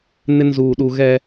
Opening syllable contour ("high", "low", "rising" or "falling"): high